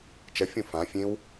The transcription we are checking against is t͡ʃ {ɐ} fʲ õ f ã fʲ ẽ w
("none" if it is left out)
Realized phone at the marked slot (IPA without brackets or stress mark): ɐ